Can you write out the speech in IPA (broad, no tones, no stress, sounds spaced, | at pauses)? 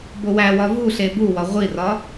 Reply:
b o w æ w ɒ v u ɬ e b u w ɒ ʁʷ i r ɒ